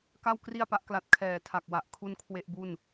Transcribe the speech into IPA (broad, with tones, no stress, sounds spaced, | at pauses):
k a˥˩ w k r i˥˩ a̯ p a˦˥ ʔ k l a˦˥ t̚ kʰ ɛː˨˩ tʰ a˨˩ k̚ w a˨˩ ʔ kʰ u˥˩ n kʰ w e˥˩ ʔ b u˥˩ n